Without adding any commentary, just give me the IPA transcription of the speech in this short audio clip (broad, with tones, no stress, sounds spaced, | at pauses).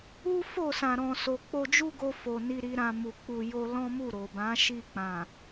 u˦ f o˦˨ s ã˨ ɾ ɔ̃˨ s o˨ k͡p o˧ d͡ʒ u˦ ɡ o˧ f o˨ n i˧ ɾ i˧ ɾ ã˧ m u˨ k͡p u˨ j o˧ l ɔ̃˦ m u˦˨ ɾ o˨ b ã˨˦ ʃ i˦˨ k͡p ã˨